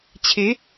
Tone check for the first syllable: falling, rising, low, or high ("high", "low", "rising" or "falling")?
rising